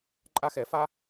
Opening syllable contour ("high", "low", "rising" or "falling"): high